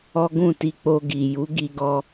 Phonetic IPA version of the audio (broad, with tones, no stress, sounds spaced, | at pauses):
ɔ˦ ɡ ũ˦˨ t i˧ k͡p o˧ ɡ i˨ j u˨˦ ɡ i˧ ɡ ɔ˧